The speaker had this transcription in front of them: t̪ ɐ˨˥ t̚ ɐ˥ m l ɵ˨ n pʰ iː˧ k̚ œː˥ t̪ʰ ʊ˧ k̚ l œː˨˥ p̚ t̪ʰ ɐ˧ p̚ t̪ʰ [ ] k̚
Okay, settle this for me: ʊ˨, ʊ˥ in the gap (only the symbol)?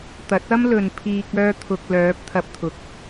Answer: ʊ˨